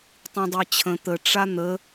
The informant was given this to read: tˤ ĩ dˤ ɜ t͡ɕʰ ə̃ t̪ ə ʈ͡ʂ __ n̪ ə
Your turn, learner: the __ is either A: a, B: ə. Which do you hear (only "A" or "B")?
A